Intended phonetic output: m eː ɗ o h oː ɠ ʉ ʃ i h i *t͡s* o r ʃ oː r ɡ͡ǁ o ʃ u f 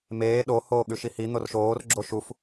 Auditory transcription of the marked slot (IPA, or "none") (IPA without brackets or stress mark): n̪